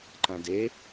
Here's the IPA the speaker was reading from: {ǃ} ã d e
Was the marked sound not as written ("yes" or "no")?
no